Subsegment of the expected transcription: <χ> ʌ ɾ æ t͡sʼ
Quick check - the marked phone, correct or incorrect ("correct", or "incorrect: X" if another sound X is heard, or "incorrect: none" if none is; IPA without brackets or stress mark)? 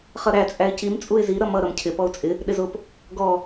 correct